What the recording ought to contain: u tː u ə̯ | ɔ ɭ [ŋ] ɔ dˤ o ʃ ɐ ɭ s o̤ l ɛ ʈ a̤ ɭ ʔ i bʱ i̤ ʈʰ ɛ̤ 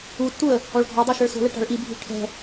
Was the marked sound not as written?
yes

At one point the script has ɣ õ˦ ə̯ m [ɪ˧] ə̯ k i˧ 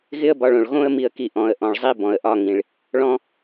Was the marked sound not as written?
yes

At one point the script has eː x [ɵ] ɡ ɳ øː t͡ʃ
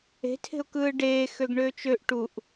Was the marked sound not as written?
yes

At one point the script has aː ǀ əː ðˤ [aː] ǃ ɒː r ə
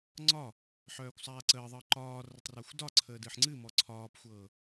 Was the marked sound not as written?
yes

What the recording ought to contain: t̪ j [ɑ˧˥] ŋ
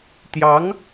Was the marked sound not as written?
no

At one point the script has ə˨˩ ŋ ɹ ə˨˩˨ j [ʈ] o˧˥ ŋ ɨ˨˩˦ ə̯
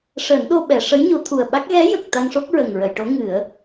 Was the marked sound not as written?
no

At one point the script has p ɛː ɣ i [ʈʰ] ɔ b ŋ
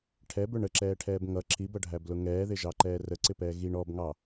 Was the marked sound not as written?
yes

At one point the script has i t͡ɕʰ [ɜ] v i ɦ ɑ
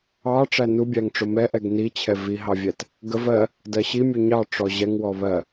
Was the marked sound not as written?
yes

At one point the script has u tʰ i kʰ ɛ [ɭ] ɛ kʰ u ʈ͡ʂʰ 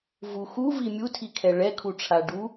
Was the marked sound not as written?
no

